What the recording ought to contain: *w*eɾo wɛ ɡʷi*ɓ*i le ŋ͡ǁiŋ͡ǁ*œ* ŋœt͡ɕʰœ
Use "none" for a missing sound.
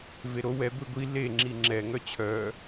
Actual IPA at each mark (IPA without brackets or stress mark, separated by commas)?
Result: v, ɡʷ, ɛ